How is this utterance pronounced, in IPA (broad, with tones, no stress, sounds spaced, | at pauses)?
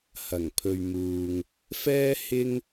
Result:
h ɐ˨˩ ŋ pʰ ɵ˨ ɥ m uː˨ ŋ | f ɛː˥ h ɪ˥ ŋ